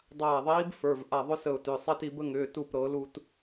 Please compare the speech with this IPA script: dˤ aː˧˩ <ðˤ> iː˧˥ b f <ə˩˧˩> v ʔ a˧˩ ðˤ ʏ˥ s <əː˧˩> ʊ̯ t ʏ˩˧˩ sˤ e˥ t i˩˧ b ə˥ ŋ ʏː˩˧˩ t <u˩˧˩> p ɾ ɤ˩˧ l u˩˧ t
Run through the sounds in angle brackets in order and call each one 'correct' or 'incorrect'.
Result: correct, incorrect, incorrect, incorrect

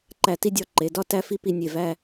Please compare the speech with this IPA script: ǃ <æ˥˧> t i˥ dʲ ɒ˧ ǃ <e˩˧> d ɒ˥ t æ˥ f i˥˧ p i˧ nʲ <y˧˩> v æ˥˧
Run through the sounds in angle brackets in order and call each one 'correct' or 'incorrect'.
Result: incorrect, correct, incorrect

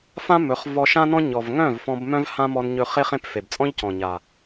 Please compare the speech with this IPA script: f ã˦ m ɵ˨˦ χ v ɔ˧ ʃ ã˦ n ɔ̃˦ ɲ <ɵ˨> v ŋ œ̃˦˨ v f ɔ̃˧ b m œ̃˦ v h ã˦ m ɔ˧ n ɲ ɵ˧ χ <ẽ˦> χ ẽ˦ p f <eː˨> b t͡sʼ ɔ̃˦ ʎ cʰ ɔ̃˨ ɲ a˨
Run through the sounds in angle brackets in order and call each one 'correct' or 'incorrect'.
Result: incorrect, incorrect, incorrect

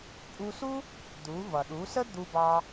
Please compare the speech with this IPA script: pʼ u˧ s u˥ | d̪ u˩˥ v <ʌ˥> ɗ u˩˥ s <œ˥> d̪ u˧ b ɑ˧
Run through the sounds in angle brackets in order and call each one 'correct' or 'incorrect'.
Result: incorrect, incorrect

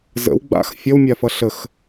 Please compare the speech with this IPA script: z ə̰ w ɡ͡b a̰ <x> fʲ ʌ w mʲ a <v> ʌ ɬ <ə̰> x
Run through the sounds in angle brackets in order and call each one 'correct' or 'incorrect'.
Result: correct, incorrect, incorrect

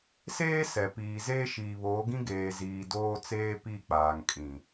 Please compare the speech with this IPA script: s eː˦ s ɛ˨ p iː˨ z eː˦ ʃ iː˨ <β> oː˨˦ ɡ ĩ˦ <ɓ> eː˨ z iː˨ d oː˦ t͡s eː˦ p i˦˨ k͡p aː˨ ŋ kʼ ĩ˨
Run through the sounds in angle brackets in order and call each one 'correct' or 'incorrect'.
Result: correct, incorrect

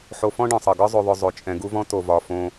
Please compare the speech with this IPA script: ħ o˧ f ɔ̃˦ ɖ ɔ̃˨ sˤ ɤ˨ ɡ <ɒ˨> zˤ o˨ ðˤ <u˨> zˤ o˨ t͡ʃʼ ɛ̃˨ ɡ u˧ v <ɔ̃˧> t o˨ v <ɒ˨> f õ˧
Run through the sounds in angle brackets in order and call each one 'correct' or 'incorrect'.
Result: incorrect, incorrect, correct, correct

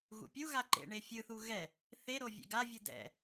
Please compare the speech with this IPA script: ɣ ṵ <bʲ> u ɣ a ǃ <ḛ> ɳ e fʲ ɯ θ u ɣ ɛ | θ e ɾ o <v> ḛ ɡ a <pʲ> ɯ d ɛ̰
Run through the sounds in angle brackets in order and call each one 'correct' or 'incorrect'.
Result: incorrect, correct, incorrect, incorrect

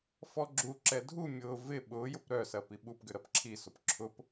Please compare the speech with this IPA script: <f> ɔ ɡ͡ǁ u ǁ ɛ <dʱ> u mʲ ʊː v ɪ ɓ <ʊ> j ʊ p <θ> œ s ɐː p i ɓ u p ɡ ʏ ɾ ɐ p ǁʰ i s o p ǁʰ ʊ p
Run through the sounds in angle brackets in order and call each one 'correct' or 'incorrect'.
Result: correct, correct, incorrect, incorrect

